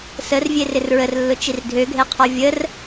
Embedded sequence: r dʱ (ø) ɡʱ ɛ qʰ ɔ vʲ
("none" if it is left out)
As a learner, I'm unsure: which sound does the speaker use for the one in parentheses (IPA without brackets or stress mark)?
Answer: ø